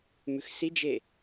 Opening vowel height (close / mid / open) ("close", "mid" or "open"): close